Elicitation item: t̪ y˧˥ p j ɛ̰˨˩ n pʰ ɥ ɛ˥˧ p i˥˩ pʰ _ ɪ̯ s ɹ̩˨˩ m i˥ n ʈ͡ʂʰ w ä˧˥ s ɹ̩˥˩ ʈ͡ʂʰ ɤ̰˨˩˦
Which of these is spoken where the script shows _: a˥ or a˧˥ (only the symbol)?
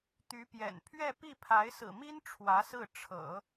a˧˥